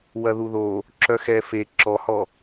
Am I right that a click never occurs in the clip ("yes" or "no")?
no